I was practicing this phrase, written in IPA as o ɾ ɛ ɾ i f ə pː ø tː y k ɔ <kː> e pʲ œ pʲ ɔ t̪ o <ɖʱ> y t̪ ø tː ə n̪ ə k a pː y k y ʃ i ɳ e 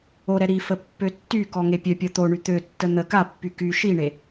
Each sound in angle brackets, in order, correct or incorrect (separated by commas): incorrect, incorrect